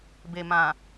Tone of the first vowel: low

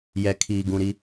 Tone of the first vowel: low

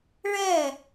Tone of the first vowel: falling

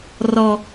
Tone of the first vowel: high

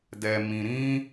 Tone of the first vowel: low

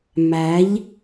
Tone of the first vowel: rising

